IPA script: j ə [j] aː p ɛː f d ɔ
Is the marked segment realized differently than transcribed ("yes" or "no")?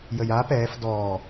no